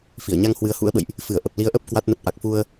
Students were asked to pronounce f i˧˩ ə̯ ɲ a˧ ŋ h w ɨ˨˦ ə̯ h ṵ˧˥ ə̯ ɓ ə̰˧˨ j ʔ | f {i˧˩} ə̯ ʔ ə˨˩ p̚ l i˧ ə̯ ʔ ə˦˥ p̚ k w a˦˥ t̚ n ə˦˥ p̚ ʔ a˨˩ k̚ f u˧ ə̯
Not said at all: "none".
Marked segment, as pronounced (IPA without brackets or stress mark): ɨ˧˩